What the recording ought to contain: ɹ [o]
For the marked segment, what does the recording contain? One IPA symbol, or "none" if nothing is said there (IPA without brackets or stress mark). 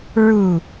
u